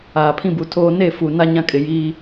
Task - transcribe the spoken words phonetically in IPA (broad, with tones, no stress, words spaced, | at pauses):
aː˨pʰĩ˦bu˨tʰoː˦ ne˦˨ fu˨ na˦ ɲã˦kʼɪ˨ jiː˦